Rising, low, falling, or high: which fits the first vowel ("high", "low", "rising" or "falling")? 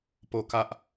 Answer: falling